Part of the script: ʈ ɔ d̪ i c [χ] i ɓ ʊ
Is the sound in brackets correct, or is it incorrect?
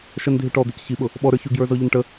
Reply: incorrect